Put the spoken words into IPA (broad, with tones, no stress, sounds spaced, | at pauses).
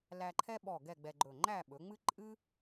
l æ˧ ǃʰ ɛ˥ ɓ ɔ˧˩ ɡ ɛ˥˧ ɡ͡b ɛ˧ ɡ͡ǃ ɵ˧˩ ŋ͡ǃ æ˥˧ ɓ ɵ˩˧ ŋ͡m ɨ˥ ǃʼ ɨ˥